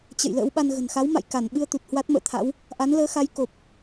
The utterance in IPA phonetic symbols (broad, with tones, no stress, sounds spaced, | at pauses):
t͡ɕ ə̰˧˨ j l ə̰ː˧˥ w ɓ a˧ n ɣ ə̤˨˩ n x a˨˦ w m a̰˧˨ j k a˧˩ n ɓ ɨ˧ ə̯ t̪ u˨˩ t̚ h w a˦˥ t̚ m ə̰ː˧˨ t̪ʰ a̰˧˥ w | ʔ a˨˦ n l əː˨˦ x a˨˦ j k o˨˩ p̚